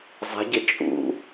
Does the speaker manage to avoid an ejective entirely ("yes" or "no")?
no